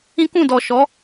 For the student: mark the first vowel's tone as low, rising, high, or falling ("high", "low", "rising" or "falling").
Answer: high